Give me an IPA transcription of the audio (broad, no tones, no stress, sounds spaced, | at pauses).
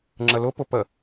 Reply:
ŋ͡ǁ ə l ʊ p ʊ p ə